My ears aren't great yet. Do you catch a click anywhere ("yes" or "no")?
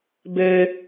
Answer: no